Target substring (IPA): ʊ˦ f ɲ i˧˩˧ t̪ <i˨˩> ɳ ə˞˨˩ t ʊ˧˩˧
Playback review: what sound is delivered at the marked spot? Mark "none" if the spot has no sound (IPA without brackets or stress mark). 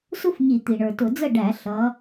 i˨˩